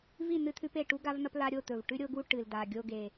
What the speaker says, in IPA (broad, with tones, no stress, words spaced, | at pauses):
vi˥˨ n̪ɨ˦t̪ʰʉ˦p e˨˩ʈu˦ɡa˦vn̪ɐ˦p la˦ɾʲo˥˨ t̪ɵ˨˩v ʈʉ˦ɾʲo˦ɡu˦ ʈɨ˨˩lda˨˩ ɡʲo˦ɡe˨˩